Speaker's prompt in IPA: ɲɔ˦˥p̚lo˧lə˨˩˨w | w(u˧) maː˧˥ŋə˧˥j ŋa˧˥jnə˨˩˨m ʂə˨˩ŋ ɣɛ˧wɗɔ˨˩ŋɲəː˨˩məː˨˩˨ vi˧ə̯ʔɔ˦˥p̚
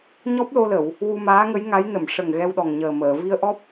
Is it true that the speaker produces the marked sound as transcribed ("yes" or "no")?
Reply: yes